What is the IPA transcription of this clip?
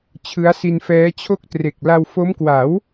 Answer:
t͡ɕʰ ɯ˦˥ a̯ s i˧ n f ɛː˦˥ t͡ɕʰ o˥˩ k̚ t r e˨˩ k̚ l a˧ w f o˦˥ m k w a˩˦ w

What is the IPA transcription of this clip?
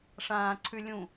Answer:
ʂ ãː ǀʰ ʉ lʲ ũ

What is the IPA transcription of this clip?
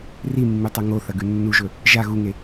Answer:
r i mː ʉ tˤ ɐ ŋ o θ ɐ ɡ ʉ nː u ʒ ɵ | ʒ a ɣ u ŋ e

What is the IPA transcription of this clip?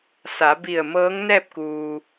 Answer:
s a˩˧ b i˧˩ ə̯ m ɤː˧˥ ŋ n ɛː˥˨ p̚ k uː˩

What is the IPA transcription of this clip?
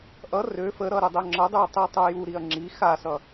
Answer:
ʔ ʌ r ø f ə ɾ ʌ ɾ ø dˤ ø ŋ͡ǁ ʌ dˤ ʉ ɐ̯ tˤ i tˤ u j u ɾ i ɐ̯ ŋ͡ǁ i x a s ʌ

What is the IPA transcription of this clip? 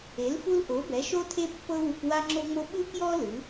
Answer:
e˩˥ l f u˦ l ʔ o˩˥ b ɛ˩˥ ʃ o˦ tʰ e˦ pː ɤ˦ w u˦ k w a˦ ŋ͡ǁ o˦ ŋ͡m o˦ ɓ ɯ˦ k j ɔ˦ l ɯ˩˥

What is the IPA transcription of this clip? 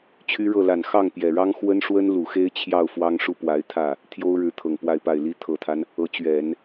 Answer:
t͡ɕʰ y˥ ɻ ɤ˥˩ l a˨˩ n x ɑ˥˩ ŋ p j ɛ˨˩ ɻ ɑ˥ ŋ x w ə˥ n ʂ w ə˥ n l u˨˩ x e˥ ɪ̯ t͡ɕʰ j ɑ˥˩ ʊ̯ f w ɑ˥ ŋ ʂ u˥˩ p w a˧˥ ɪ̯ t̪ʰ ä˥˩ | t̪ʰ j o˥ ʊ̯ ɻ ɻ̩˧˥ t̪ʰ ɤ˨˩ ŋ p w a˥˧ ɪ̯ p a˥˩ ɪ̯ l i˥ t̪ʰ ɤ˨˩ t̪ʰ a˦ n | ɤ˧˥ t͡ɕ ɥ ɛ˨˩˦ n

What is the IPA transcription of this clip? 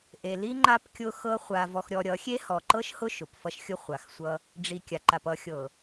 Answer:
ʔ e˨ l i˦ ŋ͡ǃ a˦ p kʲ ʊ˦ x ɤ˦ χʷ a˨ v ɔ˨ x ɾʲ ɔ˨ ɾʲ ʌ˨˦ xʲ e˦ h ɔ˨ ǃ ɤ˦ ʃ h ʊ˦ ʃ ʊ˨ p f ʌ˦ ʃ xʲ ʊ˦ χʷ a˨˦ x sʷ ʌ˦ | ɖ͡ʐ i˨ kʲ a˨ ǃ a˨ p ʌ˨˦ xʲ ɤ˨

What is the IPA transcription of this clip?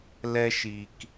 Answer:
l ɛ˦ ʃ i˨ k

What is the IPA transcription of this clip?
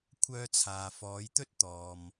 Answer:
kʷʰ œː˧ t͡sʰ aː˨ f ɔː˨˧ j t̪ ɵ˥ t̚ t̪ ɔː˨ m

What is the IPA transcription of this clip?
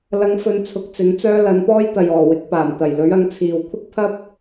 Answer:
l ɐ˨˧ ŋ f ɵ˧ n t͡sʰ ʊ˨˥ k̚ t͡s ɪ˨˥ ŋ t͡s œː˥ l ɐ˨˧ n p ɔː˥ j t̪ ɐ˨ j ɔː˨˩ w ɪ˨˥ k̚ p aː˨˩ n t̪ ɐ˨˩ j l ɵ˨˥ ɥ ɐ˨˥ ŋ t͡sʰ iː˨ w kʷʰ ɪ˥ k̚ pʰ ɐ˥ p̚

